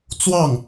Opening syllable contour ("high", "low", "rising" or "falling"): falling